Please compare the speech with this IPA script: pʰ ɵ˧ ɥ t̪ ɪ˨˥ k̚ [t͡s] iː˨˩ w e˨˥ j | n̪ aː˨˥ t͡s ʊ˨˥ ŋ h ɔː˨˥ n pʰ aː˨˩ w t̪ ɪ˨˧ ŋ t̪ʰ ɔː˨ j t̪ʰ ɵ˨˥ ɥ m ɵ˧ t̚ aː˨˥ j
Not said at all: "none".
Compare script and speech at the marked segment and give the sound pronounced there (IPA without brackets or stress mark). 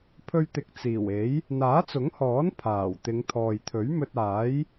t͡s